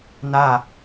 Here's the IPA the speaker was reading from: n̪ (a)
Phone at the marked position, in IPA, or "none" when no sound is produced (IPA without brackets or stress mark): a